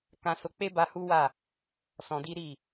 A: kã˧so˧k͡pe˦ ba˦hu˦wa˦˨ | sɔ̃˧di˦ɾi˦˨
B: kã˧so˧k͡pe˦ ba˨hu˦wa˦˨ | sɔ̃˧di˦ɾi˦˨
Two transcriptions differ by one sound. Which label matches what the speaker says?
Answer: A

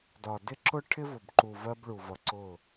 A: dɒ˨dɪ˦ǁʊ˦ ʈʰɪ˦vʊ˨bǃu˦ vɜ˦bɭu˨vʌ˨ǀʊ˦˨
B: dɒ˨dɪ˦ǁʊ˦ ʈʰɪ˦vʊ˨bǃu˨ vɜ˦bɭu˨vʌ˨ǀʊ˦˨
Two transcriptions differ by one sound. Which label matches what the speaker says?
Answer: B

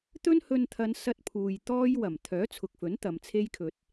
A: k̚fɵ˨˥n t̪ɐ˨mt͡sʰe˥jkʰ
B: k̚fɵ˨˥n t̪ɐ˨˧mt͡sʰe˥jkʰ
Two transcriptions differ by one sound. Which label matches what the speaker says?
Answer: B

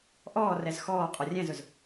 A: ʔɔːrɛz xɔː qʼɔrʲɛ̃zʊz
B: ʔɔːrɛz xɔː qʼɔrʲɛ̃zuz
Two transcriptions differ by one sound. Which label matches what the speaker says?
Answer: A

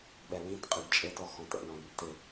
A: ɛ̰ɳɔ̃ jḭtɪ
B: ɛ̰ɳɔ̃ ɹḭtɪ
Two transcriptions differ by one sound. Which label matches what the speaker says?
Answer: A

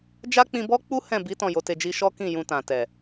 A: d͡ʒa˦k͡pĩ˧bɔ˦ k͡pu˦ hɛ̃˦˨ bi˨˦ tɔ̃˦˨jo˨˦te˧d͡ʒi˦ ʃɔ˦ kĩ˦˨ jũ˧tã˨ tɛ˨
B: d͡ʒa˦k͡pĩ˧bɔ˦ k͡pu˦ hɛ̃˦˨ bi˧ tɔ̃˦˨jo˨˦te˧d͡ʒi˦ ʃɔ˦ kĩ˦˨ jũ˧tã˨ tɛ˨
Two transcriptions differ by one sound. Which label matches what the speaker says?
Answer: A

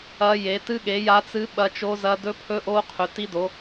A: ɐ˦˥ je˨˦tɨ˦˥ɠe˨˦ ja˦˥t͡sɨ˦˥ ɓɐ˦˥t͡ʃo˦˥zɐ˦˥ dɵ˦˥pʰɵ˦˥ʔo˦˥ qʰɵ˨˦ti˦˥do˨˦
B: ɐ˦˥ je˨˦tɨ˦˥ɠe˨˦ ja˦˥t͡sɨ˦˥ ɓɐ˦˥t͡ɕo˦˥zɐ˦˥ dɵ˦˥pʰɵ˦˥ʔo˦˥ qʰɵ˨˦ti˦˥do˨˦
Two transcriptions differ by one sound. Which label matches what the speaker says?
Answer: A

